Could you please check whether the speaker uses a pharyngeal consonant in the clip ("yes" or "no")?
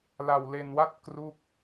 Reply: no